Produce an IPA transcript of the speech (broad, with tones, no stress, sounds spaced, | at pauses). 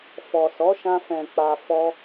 f ɔ˨ s ɔ˨˦ ʃ ã˧ f ɛ̃˨ k͡p a˨ f ɔ˧